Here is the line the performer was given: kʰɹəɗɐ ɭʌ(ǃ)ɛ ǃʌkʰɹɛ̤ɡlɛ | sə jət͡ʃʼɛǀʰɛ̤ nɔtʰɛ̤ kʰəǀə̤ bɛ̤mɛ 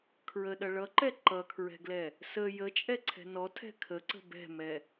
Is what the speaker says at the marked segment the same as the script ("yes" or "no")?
yes